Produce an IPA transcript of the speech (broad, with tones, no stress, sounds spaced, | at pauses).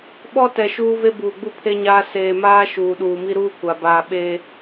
ɓ ɔ˦ t ɛ˨ ʃ uː˦ v e˦ b uː˨ ɡ͡b u˦ pʰ e˦ ɲ aː˦ s eː˨ m aː˦ ʃ uː˨ ɗ uː˨ m i˦ ɾ uː˦ kʷ a˨ b aː˨ ɓ e˦